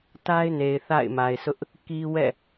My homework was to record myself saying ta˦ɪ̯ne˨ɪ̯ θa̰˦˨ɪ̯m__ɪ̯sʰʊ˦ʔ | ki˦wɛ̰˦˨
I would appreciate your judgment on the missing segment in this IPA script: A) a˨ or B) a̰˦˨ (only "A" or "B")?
A